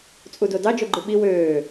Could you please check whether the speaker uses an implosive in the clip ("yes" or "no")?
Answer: yes